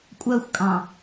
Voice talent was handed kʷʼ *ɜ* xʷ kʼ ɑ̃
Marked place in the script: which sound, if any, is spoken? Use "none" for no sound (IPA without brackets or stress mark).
ɜ